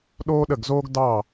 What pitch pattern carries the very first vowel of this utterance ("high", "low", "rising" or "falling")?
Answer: high